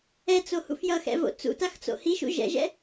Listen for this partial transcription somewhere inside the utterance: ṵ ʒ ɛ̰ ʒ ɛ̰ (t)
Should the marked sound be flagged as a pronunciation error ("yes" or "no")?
yes